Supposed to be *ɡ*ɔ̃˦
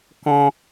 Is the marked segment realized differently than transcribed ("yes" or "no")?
yes